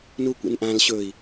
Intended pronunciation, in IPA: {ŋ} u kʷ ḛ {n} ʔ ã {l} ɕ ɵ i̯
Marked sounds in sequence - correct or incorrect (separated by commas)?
incorrect, correct, correct